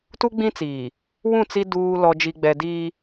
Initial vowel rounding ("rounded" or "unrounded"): rounded